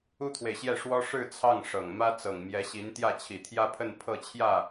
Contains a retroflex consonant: yes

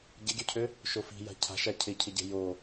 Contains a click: no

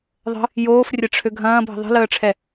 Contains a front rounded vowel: yes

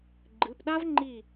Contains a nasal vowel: no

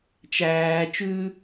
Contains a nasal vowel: no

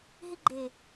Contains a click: yes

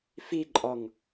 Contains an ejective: yes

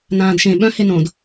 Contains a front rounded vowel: yes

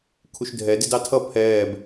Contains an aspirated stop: yes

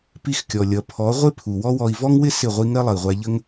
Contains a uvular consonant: yes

